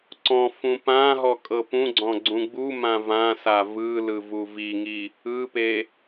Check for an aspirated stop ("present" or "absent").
absent